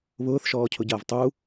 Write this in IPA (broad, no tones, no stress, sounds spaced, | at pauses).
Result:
β ʊː θ ʃ ɔː cʰ ʊ ɟ ɐː v tˤ u